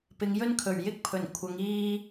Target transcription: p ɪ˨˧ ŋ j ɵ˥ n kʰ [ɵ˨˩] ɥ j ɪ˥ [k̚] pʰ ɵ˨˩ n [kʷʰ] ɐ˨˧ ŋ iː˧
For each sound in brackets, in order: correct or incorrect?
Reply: correct, correct, correct

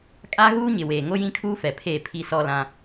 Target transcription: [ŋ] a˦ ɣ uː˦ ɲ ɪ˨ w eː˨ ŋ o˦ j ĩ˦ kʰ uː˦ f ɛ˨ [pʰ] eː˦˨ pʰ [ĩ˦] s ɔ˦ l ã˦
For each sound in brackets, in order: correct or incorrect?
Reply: incorrect: kʼ, correct, incorrect: i˦

